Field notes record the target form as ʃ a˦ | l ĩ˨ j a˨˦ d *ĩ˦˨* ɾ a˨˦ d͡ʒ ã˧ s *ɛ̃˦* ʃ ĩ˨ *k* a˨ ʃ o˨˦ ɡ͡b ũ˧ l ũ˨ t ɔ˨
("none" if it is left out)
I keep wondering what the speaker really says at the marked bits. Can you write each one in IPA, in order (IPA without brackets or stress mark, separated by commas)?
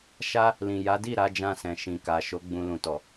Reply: i˦˨, ɛ̃˨, k